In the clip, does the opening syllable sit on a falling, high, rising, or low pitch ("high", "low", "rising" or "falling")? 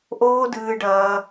high